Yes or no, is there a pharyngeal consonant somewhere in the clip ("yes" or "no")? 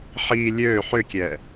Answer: yes